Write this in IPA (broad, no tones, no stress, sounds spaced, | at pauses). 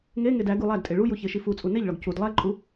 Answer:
ŋ e ŋ e d æ ɡ u lˠ æ d tʼ e ɭ u j u ç e ʃ i f u t͡sʼ u n e ʎ ɭ ɒ ɡ c u d lˠ æ ǃʼ u